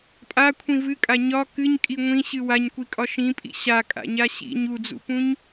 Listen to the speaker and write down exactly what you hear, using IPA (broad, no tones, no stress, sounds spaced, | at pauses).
pʼ a kʷʰ ĩ v ɨ kʼ a ɲ ɒ k ɨ ɲ kʼ i ŋʷ ĩ ɕ ɨ w a ɲ kʷ i kʼ ɒ ʃ ĩ pʼ ḭ ɕ a kʼ a̰ ɲ a ɕ ḭ ɲ u d͡z ṵ p ũ ɲ